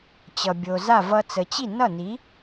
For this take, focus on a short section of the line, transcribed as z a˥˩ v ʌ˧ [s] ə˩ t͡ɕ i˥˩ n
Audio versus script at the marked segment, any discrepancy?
yes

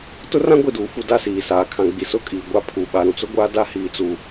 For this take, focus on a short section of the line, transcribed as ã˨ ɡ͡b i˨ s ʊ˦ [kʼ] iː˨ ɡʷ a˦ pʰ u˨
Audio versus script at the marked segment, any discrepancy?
no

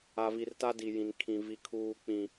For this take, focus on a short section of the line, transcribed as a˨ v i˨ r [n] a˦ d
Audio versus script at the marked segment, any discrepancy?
yes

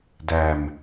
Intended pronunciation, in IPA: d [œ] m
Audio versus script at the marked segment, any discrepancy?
yes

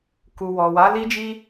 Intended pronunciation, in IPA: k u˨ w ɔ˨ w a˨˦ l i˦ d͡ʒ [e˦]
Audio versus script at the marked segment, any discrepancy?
yes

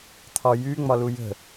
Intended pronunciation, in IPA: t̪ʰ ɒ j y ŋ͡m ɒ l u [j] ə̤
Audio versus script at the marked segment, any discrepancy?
no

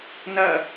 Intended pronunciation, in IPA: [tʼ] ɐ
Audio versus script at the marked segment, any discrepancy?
yes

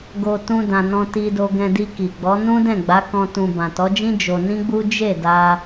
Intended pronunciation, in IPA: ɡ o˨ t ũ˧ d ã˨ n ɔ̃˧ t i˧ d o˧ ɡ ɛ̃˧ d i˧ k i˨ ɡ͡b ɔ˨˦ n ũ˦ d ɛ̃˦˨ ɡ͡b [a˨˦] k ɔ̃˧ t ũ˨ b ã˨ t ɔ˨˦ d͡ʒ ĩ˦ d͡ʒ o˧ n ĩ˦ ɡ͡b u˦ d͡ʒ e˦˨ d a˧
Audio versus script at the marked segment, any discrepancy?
no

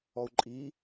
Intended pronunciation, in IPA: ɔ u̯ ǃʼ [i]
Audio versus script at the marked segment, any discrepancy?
no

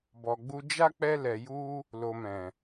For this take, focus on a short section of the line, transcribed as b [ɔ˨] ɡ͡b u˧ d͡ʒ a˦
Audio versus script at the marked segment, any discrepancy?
no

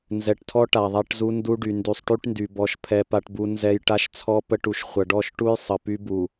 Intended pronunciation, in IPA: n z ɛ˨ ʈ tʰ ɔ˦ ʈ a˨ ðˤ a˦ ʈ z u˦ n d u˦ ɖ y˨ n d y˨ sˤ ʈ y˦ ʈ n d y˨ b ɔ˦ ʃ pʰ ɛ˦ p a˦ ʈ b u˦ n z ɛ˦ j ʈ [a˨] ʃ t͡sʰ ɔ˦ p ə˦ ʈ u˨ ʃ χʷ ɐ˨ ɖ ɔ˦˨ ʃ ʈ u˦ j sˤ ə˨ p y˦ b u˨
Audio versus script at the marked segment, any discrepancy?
yes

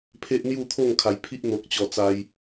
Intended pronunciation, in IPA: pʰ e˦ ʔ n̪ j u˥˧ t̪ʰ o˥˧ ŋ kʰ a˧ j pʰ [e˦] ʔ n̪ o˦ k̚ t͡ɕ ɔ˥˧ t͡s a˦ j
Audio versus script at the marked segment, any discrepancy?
yes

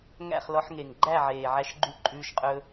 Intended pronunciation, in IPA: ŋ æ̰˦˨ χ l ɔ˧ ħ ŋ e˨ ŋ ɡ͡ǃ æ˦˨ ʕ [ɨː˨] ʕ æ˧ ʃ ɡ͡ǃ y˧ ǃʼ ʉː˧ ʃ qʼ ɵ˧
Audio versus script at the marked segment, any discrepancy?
yes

